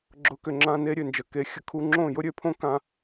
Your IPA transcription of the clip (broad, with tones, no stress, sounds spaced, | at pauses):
ɡ͡ǁ ʊ˨˦ k ʏ˨ ŋ͡ǁ ã˧ n e˦ ɾʲ ø˨ n d͡ʒ ə˨ k e˨˦ xʲ ə˨ kʰ u˧ ŋ͡ǁ õ˦˨ j ʊ˦ ɾʲ ø˨˦ pʰ õ˦ k ã˧